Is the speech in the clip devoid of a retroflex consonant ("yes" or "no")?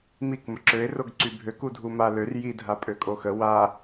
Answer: yes